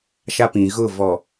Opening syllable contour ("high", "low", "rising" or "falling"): high